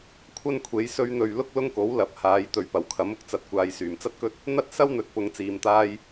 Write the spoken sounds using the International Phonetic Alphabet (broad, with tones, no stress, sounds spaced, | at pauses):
kʷʰ ɐ˥ n kʷʰ e˨˥ j s ɵ˧ ɥ n̪ ɵ˨ ɥ l ʊ˥ k̚ l ʊ˥ ŋ k o˨˥ w l ɐ˨˥ p̚ h aː˨˧ j t̪ ɵ˨ ɥ p ɐ˨˩ w kʰ ɐ˨˥ m ʊ˥ k̚ t͡s ɐ˨ t̚ kʷ aː˨ j s yː˨˩ m t͡s ɐ˥ t̚ k ɵ˥ t̚ | n̪ ɐ˥ t̚ s ɐ˥ w n̪ ɵ˨ t̚ p ʊ˧ ŋ t͡s iː˨ m t̪ aː˥ j